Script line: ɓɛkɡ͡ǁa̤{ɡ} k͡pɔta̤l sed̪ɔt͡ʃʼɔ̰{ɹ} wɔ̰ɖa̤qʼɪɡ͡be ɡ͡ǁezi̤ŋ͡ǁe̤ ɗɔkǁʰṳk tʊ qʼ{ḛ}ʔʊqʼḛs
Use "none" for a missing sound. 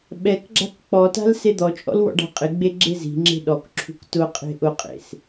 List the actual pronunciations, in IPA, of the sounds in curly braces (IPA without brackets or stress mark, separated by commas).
k, l, e̤